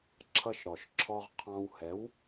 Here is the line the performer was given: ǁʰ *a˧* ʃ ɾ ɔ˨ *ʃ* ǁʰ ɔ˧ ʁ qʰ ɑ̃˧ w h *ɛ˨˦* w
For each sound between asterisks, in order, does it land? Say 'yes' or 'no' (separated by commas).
no, yes, yes